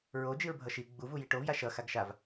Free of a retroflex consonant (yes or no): no